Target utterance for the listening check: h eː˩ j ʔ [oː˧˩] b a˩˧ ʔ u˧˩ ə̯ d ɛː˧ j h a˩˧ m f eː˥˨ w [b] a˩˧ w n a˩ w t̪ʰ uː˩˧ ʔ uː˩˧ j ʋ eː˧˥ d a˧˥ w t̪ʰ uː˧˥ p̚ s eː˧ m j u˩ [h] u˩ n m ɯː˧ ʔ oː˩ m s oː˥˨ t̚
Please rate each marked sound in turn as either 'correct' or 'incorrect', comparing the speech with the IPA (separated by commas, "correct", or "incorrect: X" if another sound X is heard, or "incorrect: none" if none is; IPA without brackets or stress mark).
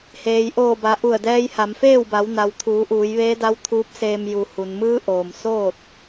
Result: correct, correct, correct